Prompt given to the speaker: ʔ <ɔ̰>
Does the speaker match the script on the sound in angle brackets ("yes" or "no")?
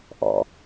yes